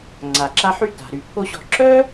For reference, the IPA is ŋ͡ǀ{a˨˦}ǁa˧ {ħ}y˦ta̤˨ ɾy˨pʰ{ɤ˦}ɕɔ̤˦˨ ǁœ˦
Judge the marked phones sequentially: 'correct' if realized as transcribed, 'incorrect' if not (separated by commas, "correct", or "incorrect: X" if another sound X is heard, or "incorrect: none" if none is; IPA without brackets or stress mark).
incorrect: a˨, correct, incorrect: o˦